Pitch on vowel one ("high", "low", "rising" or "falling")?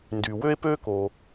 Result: low